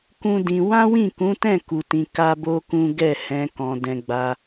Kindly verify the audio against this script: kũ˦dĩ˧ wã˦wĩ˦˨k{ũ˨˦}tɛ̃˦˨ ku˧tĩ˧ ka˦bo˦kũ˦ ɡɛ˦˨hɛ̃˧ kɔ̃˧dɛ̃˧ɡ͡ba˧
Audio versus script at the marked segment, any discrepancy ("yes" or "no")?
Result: no